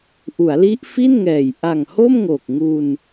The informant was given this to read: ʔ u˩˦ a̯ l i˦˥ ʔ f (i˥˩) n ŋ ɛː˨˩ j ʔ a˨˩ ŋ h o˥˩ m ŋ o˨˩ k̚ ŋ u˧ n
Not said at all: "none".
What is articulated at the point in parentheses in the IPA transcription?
i˥˩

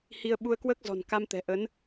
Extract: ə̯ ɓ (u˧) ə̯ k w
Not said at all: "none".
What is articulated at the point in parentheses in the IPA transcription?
u˧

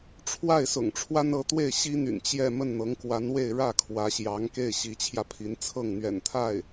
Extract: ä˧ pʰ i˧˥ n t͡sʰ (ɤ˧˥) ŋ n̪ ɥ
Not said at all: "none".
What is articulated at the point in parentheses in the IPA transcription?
ɤ˥˩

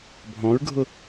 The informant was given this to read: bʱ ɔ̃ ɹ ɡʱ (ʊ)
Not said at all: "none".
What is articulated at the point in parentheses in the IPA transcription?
ʊ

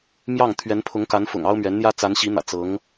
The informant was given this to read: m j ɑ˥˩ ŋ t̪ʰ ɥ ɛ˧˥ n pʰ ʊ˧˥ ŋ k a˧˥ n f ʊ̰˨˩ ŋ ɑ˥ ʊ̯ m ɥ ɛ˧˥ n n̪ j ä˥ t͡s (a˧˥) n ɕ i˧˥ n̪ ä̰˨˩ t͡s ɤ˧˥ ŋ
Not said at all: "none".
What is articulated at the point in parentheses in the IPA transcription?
a˧˥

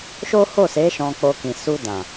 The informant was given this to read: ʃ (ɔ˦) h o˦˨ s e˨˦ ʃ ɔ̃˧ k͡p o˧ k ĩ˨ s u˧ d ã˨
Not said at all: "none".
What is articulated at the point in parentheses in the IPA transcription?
o˦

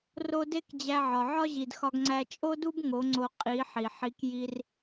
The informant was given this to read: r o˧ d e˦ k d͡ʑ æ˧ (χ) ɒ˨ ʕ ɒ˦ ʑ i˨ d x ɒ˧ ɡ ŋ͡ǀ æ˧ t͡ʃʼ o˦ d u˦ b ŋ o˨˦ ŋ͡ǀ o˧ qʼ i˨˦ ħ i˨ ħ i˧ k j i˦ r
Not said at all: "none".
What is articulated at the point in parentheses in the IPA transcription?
ʕ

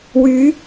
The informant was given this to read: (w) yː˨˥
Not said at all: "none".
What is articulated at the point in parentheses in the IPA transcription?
w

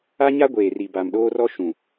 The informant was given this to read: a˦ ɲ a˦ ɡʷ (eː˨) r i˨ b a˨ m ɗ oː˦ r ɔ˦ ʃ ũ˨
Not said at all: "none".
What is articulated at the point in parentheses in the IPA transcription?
eː˨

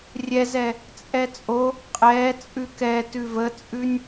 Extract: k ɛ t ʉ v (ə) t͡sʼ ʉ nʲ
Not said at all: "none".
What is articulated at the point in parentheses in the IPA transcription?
ə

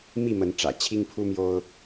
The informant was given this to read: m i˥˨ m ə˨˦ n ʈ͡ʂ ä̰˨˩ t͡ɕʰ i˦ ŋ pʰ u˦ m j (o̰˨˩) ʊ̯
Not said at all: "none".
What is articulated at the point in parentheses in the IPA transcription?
o˦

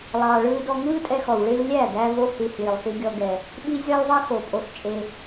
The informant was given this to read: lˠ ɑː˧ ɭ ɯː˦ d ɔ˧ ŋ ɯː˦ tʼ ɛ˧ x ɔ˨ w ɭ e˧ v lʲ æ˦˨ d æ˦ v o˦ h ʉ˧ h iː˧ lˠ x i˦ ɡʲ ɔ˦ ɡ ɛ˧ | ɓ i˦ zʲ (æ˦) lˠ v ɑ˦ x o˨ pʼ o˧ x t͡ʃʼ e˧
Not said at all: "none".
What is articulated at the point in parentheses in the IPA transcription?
æ˦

